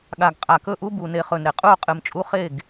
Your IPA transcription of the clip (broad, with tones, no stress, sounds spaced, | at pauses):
ɠ a˨ ɡ qʼ a˨ k ɵ˥˩ ʔ u˦ b u˨ n e˨ χ ɵ˨ n ɾ e˨ qʼ u˥˩ o̯ qʼ ɨ˨ m t͡ʃʼ u˦ χ e˥˩ ɡ